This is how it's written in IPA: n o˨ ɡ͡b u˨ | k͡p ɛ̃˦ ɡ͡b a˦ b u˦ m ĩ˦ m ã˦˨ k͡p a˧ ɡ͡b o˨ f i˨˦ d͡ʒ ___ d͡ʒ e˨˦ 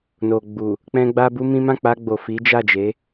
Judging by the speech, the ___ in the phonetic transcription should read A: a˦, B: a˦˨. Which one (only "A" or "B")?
B